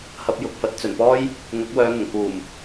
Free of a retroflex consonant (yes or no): yes